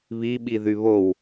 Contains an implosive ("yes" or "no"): yes